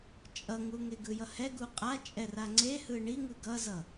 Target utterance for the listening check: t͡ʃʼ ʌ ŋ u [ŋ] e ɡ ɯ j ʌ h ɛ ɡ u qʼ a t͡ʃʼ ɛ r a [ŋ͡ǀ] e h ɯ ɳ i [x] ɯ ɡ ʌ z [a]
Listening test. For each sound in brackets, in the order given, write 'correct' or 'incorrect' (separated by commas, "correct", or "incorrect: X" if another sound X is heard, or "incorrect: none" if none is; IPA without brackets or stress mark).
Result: correct, correct, incorrect: ŋ, incorrect: ʌ